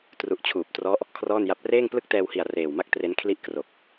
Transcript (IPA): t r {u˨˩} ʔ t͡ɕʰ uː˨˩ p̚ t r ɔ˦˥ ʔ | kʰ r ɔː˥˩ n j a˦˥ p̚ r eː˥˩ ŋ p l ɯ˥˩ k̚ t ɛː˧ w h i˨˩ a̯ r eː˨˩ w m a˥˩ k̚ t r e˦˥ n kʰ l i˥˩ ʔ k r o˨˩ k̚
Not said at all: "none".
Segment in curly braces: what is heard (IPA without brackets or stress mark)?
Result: u˨˩